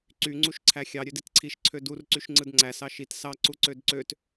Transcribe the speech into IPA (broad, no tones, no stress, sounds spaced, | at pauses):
ǀ y ŋ͡ǀ u ʃ ǀʰ æ xʲ ɑ ɾʲ ø d i t ǀʰ i ʃ ǀʰ ø d u r ǀ y ʃ ŋ͡ǀ ɯ d ŋ͡ǀ æ s ɑ ʃ i t s ɑ ǀ u ǀ ø d ǀ ø t